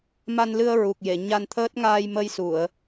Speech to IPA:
m a˧ n l ɨ˧ ə̯ ɹ u˨˩ k̚ j e˨˩˨ ɲ a˧ n t̪ʰ əː˦˥ t̚ ŋ aː˧ j m ə˧ j s u˨˩˨ ə̯

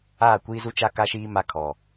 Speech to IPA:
aː˦˨ kʷ iː˦ z u˦ t͡ʃ a˦ k a˦ ʃ iː˦ m a˦ kʰ ɔ˨

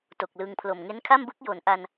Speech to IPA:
t o˨˩ k̚ l ɯ˧ ŋ pʰ l o˨˩ m ŋ e˦˥ n kʰ a˥˩ m b ɯ˥˩ k̚ j o˩˦ n ʔ a˧ n

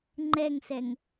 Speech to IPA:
ŋ͡ǃ ɛ ŋ s ɛ ŋ

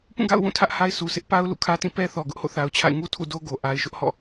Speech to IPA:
p ũ˦˨ ɡ a̰˦˨ ʊ̯ w ũ˦˨ tʰ ä˦ ʔ h a˦ ɪ̯ s u˨ s ɪ˦ ʔ p a˦ ʊ̯ l ṵ˦˨ kʰ ä˦ t ĩ˦˨ p ɛ˦ θ ɔ˨ ɡ ʊ˦ ʔ h o̰˦˨ θ a˨ ʊ̯ t͡ɕʰ a̰˦˨ ɪ̯ ŋ u˦ tʰ ṵ˦˨ d o˦ ɡ o˨ ʔ a˨ ɪ̯ ʃ ʊ˦ ʔ h ɔ̰˦˨

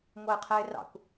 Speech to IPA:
ŋʷ ʌ ɪ̯ qʰ ɛ ɪ̯ r ɑ̰ kʷ

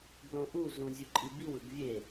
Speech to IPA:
b l õ ʔ u z ũ zʲ u ǃʼ i b i w ɯ ɡ vʲ e

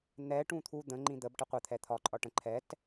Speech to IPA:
n̪ ɛ ʈ ũ t̪ʰ u d̪ ə̃ ŋ͡ǃ ĩ d̪ ə b ʈ ə qʷ ə t̪ʰ ɛ t̪ʰ ɒ ǃʼ ɒ ʈ ə̃ ǃʰ ɛ t

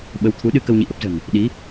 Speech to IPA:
ɓ ə˨˦ w t̪ʰ u˨˦ ɗ ɨ˧ k ə˧ w ɲ ḭ˧˨ ʔ ə˦˥ p̚ z ə̤˨˩ n | ɗ i˨˦

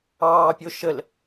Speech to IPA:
ɑː pʲ o ʃ ə l

